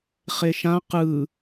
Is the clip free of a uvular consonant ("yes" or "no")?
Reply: no